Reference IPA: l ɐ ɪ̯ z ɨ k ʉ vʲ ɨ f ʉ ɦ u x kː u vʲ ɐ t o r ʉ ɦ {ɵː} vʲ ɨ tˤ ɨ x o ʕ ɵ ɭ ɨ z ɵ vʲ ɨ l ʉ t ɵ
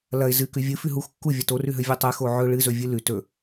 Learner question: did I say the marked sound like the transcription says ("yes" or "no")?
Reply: no